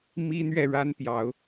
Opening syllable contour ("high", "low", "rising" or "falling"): high